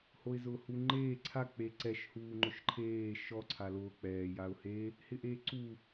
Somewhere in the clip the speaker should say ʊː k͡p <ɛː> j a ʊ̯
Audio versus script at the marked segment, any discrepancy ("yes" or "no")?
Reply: no